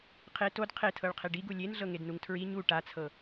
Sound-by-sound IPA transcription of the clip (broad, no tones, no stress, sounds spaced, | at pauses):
qʰ e t o d qʰ e tʰ ɤ ɭ qʰ e ɖ i ɡ u lʲ e n ɮ ɤ ŋ e d n u ŋ tʰ ɹ i ɲ u ʈ a t͡sʰ ɤ